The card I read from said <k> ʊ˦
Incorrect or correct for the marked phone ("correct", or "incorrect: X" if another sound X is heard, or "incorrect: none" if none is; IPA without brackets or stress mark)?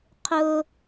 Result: incorrect: qʰ